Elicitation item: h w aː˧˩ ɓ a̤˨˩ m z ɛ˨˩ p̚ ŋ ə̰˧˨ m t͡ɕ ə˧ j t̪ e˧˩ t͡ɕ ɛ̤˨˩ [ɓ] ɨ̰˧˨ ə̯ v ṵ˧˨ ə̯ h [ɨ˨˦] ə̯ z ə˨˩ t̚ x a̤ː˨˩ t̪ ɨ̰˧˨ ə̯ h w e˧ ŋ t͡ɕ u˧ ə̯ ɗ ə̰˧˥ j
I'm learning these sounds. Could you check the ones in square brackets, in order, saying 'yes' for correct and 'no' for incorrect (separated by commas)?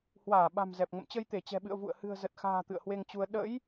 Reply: yes, no